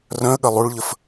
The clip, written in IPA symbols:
r œ̃ ə̯ ɠ ɐ lˠ u ɭ ʎ ə f

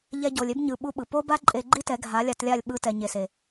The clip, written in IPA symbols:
ʎ ɛ˧ ɟ o˨ lʲ e˦ b ɲ ɯ˨ ɓ u˦ ɓ ɯ˨ p o˦ b a˦ ǃʼ e˧ ɡ͡ǃ i˦ t ɛ˨˦ ɡʱ a˨˦ lʲ a˧ t lʲ a˦˨ lʲ ɓ ɯ˨ t ɛ˨ ɲ e˨ s e˨

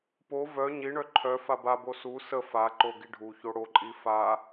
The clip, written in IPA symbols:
p o v œ ɲ i ɳ œ ǃʰ œ f a b a b o s u s ə f a ǃ o ɡ i ɖʱ u ç o ɽ o ǃʼ i f a

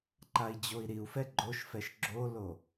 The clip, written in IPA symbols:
ǃ a i̯ d͡ʑ o i̯ ɾ i u̯ f ɛ ɡ͡ǃ o ʃ f ɛ ʃ ɡ͡ǁ o l o

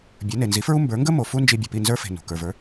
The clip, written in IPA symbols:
bʲ ə˞˩˥ n e˩ n z i˩˥ f ɹ u˥ m b ə˞˩˥ ŋ ɡ ə˥ m o˩ f u˥ n d͡ʒ i˧ bʲ ə˩ p i˥˩ n z ə˞˥ f e̤˩ n ṳ˩ k ə˞˩ v ə˞˩˥

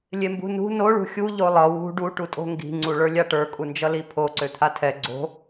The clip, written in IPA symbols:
lʲ e m b ṳ n ṳ n o ɭ ṳ xʲ u ʎ o lˠ ʌ w ṳ ɖ u ʈ u tʼ o̤ ŋ ɡ i̤ ŋ͡ǀ u ɭ ə˞ lʲ a ʈ ə˞ kʼ u n d͡ʒ ʌ l i pʰ o ǀ ø t̪ʰ a tʰ ɛ ɡ͡ǀ o̤

